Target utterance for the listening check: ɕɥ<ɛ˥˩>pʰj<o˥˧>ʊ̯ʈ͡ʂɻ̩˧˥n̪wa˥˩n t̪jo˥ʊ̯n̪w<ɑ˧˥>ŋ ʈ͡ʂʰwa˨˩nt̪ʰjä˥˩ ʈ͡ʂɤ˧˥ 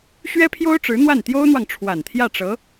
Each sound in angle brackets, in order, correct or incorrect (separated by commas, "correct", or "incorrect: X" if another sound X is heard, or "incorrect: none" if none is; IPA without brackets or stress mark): incorrect: ɛ˥, incorrect: o˥, incorrect: ɑ˨